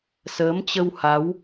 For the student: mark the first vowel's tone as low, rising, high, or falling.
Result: rising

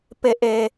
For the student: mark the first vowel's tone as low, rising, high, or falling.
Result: high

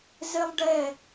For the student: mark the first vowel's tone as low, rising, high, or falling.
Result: high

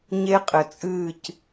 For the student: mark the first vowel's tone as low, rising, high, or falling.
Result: high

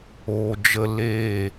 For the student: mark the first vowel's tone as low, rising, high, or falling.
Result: low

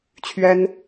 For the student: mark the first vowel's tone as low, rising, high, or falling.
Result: high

